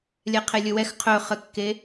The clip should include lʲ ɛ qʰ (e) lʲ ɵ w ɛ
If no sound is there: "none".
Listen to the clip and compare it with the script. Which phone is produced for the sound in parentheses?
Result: e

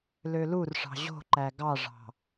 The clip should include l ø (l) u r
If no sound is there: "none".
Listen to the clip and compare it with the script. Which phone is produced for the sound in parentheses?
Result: l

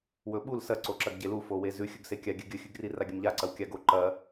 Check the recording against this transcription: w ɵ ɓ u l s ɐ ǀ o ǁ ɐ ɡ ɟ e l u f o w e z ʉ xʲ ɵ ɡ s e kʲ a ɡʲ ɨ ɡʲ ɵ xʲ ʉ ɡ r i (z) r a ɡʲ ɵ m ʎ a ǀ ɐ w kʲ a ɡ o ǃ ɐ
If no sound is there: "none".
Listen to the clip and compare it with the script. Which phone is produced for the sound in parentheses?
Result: none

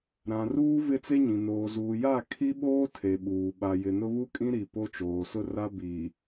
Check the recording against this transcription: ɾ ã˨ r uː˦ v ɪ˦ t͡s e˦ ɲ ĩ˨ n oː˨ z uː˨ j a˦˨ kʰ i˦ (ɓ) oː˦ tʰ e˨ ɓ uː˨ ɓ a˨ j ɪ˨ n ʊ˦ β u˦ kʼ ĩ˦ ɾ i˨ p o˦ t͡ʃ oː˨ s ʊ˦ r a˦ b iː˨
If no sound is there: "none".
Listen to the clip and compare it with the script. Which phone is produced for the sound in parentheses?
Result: ɓ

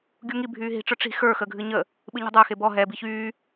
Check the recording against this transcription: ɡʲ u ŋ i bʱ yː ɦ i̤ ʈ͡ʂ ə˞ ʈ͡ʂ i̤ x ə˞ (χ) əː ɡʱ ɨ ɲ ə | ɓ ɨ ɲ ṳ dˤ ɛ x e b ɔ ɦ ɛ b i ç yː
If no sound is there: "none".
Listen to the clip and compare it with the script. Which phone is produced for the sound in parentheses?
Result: x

